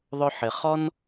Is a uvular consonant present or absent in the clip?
present